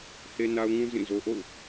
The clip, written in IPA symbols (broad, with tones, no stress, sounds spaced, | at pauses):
h e˦ n a˦ ʊ̯ ŋ ũ˦ z ĩ˦˨ z o˦ ʔ o̰˦˨ ʊ̯